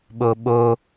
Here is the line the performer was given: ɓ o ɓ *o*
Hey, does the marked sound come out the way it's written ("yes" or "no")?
yes